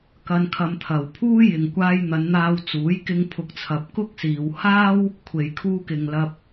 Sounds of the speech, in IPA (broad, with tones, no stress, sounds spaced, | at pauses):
k ɐ˧ n kʰ ɐ˧ m t̪ʰ ɐ˨ w pʰ uː˥ j ɪ˨ ŋ kʷ aː˧ j n̪ ɐ˨˧ n n̪ aː˧ w t͡s uː˨˥ j k ɪ˧ ŋ pʰ ʊ˨˥ k̚ t͡sʰ ɐ˨ p̚ k ʊ˥ k̚ s iː˨ w h aː˥ w | kʷʰ e˨ j kʰ uː˧ k ɪ˨ ŋ l ɐ˧ p̚